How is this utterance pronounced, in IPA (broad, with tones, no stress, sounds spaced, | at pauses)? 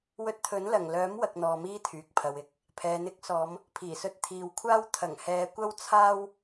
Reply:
w ɵ˧ t̚ t̪ʰ ɵ˨˥ n l ɐ˨˩ ŋ l œː˨˥ m w ɐ˨ k̚ n̪ ɔː˨ m iː˥ t̪ʰ yː˨ k̚ pʰ ɐ˨ w ɪ˨˥ k̚ | pʰ ɛː˨ n̪ ɪ˧ k̚ s ɔː˨˧ m | pʰ iː˨˩ s ɵ˧ t̚ t̪ʰ iː˨˧ w kʷʰ aː˥ w t̪ʰ ɐ˨˩ ŋ h ɛː˨˧ kʷ ɐ˥ w t͡sʰ aː˥ w